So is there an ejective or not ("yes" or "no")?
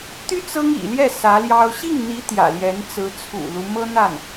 no